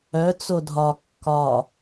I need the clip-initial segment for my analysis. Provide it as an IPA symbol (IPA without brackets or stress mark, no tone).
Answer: œ